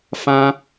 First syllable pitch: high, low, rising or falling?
high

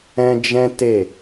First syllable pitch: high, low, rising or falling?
high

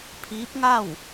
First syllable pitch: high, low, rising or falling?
rising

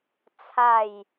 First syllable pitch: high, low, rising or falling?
falling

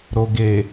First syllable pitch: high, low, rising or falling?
low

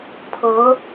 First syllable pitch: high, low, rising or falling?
rising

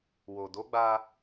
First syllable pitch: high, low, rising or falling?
low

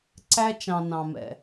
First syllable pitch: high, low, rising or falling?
high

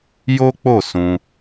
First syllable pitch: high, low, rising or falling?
high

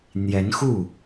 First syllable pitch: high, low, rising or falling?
rising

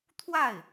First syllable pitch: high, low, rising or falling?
falling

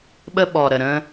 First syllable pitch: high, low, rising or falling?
high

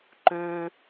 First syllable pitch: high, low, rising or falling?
high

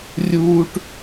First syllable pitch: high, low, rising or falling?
high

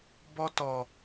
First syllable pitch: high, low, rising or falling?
high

